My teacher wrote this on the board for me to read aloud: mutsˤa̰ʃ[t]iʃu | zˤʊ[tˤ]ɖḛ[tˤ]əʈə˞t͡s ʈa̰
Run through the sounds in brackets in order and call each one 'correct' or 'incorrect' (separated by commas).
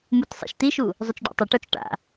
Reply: correct, incorrect, correct